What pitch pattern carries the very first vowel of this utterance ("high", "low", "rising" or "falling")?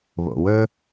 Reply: low